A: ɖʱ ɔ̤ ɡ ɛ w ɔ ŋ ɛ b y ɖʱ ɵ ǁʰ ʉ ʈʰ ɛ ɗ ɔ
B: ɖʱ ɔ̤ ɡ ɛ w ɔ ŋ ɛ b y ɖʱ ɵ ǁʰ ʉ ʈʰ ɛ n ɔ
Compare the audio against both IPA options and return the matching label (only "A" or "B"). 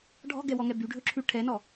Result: B